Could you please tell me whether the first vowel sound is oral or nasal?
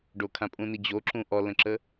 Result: oral